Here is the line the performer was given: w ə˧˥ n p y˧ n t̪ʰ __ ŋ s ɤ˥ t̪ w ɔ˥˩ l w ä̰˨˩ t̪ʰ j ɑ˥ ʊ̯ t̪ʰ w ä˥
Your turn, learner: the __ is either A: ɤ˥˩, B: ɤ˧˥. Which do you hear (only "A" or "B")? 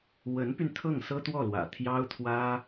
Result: A